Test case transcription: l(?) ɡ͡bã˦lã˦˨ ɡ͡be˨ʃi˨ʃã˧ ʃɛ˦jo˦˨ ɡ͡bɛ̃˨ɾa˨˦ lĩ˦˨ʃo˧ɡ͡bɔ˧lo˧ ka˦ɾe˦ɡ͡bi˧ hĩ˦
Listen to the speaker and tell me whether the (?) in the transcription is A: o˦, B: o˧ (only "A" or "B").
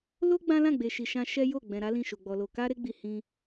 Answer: A